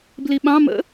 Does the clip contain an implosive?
yes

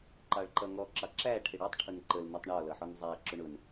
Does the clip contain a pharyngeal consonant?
yes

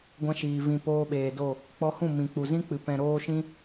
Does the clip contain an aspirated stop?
no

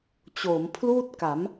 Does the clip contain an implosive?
no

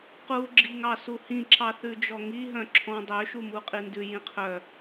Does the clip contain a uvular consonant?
yes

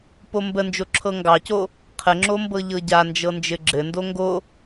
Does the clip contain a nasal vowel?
no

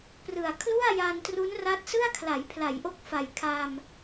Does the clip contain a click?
no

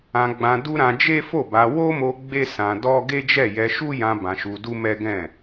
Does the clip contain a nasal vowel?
yes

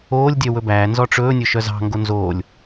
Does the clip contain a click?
no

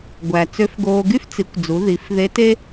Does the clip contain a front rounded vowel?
yes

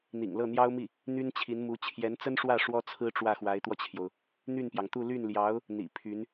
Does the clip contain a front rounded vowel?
yes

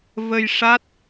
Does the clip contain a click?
no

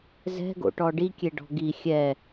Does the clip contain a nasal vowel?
no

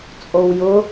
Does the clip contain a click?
no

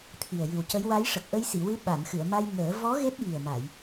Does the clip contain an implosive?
yes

